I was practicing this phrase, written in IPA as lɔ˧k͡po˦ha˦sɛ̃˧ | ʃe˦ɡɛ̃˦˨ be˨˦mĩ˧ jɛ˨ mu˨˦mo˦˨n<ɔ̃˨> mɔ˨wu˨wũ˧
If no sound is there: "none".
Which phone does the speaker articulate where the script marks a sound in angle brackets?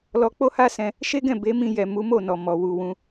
ɔ˨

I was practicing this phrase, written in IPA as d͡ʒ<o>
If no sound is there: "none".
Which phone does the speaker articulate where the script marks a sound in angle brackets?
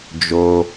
o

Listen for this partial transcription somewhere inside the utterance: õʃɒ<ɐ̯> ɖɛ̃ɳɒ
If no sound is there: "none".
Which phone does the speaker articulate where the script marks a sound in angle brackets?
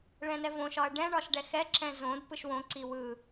ɐ̯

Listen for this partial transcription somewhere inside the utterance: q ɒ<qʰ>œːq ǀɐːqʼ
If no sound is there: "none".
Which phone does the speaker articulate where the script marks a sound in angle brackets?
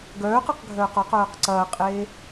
q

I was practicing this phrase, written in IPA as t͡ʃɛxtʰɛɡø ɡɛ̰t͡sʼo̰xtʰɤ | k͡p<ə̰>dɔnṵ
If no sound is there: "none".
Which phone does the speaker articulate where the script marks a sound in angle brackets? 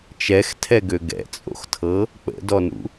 ə̰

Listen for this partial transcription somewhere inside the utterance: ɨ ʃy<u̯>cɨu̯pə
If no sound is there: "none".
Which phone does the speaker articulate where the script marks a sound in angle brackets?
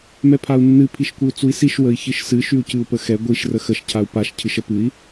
u̯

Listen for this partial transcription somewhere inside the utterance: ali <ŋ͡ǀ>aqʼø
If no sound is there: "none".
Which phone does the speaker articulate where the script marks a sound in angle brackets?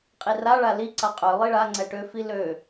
ǀ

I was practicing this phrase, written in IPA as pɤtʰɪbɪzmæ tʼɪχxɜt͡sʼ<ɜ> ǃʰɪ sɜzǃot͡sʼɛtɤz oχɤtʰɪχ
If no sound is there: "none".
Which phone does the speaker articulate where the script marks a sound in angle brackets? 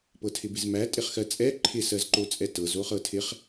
ɛ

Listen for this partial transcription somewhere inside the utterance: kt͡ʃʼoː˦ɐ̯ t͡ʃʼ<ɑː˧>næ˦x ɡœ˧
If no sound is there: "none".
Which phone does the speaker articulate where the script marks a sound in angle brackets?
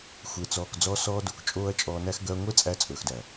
ɔː˧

